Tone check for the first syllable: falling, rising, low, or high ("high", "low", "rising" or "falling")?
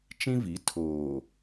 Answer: high